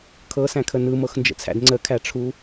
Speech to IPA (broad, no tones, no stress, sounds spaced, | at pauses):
kʰ ɤ s æ̃ kʰ ə n ɯ m ɤ x n d͡ʒ ə̰ t͡sʰ æ̰ d ŋ͡ǀ ə kʰ æ ʈ͡ʂʰ u